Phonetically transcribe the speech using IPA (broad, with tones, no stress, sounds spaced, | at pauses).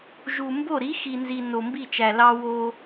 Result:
ʒ u˨ m b o˦˨ ɾ i˨˦ x i˨ n z i˨ n o˨ m b i˦˨ t͡ʃ æ˨ l ɑ˦ w o˦